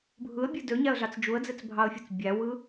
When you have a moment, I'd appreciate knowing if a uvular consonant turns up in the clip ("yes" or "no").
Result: no